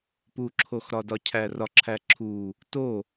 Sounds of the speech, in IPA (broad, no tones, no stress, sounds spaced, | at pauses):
p u ǁʰ o x ɾ ɒ d ɒ cʰ æ r ɒ ǁʰ æ ǁʰ u | t o